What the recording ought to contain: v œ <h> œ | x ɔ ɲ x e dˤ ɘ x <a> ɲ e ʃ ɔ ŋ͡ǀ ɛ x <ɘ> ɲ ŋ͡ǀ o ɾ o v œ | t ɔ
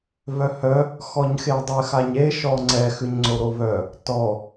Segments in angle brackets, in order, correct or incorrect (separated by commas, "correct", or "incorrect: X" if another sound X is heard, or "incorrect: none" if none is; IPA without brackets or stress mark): correct, correct, incorrect: ʉ